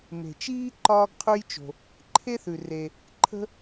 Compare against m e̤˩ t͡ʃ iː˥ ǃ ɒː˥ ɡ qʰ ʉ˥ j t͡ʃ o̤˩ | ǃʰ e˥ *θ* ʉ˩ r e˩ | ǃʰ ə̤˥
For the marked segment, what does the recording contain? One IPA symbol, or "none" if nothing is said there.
θ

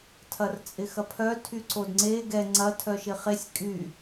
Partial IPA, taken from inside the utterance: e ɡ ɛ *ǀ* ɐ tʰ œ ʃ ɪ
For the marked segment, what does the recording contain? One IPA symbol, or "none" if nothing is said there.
ŋ͡ǀ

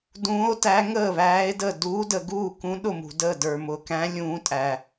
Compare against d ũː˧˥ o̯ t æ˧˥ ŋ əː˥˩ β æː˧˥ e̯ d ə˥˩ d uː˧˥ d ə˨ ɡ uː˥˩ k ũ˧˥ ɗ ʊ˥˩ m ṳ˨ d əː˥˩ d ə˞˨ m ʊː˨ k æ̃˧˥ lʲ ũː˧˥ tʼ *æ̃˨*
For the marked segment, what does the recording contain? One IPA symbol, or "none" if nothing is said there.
æ˨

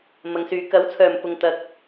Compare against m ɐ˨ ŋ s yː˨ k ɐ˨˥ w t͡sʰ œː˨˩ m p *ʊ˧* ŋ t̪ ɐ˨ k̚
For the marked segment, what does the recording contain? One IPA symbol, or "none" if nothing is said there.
ʊ˧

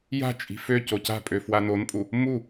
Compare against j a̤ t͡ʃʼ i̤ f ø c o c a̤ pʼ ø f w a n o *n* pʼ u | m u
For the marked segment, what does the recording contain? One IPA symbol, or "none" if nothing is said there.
n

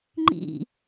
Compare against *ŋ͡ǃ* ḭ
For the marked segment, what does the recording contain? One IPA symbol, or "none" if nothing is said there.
ŋ͡ǃ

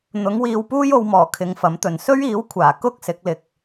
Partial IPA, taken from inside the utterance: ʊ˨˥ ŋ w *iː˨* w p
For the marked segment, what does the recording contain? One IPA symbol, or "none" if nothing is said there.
iː˧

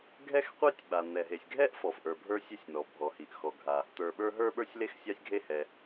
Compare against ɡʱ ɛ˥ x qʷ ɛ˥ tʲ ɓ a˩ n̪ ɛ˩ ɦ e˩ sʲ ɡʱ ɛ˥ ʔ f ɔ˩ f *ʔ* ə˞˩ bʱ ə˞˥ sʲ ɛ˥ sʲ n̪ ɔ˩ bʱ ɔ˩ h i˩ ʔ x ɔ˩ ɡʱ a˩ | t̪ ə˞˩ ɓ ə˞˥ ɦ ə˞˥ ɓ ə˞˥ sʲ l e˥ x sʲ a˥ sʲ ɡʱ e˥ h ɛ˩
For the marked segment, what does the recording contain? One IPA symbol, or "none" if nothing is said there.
ʔ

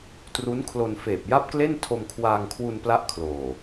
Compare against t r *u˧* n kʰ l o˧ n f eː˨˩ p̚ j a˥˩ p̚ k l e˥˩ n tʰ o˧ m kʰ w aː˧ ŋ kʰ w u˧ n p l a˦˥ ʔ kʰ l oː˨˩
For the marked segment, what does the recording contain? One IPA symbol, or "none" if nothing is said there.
u˦˥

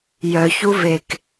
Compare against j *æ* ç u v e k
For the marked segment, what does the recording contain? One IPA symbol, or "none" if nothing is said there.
œ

